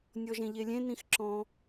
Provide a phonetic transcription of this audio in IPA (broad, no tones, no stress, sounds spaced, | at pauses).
nʲ ɔ ʒ ẽ ʎ e lʲ ẽ n ĩ x ǁ ɔ̃